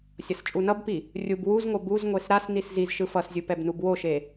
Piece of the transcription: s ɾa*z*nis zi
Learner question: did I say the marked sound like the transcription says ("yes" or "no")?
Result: no